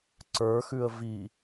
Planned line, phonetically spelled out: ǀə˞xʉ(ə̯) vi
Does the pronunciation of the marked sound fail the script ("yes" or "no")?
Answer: no